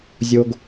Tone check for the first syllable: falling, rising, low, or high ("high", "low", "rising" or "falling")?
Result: low